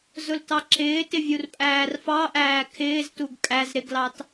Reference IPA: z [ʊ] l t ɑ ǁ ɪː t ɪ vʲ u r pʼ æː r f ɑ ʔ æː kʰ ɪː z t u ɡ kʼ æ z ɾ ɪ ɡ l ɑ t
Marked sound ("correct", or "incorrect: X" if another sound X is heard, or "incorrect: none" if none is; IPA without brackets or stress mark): correct